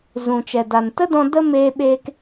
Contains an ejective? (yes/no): no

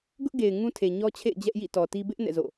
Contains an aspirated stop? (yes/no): yes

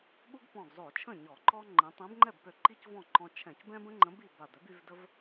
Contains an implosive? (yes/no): yes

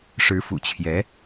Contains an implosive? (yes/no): no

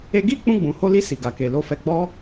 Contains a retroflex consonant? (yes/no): no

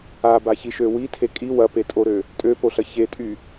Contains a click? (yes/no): no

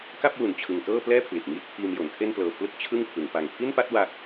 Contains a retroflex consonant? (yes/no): no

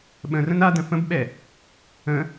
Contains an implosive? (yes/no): yes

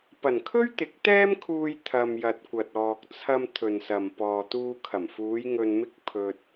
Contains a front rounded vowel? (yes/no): no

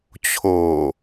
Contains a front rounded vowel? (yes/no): no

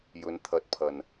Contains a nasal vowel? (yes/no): no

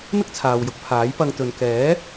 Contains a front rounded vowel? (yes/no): no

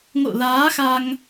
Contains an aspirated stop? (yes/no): no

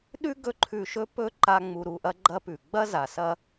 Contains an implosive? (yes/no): yes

